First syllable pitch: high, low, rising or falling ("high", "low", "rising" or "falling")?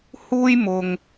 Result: high